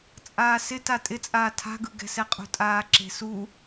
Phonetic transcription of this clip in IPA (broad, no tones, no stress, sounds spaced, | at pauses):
t͡sʼ aː s ɪ t a tʼ ɪ t͡sʼ aː tʰ a̤ ɡ ɯ ɡ ɛ̤ s ɛ qʼ ṳ tʼ aː ǁ e̤ s u